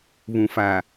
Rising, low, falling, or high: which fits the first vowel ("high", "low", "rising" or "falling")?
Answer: low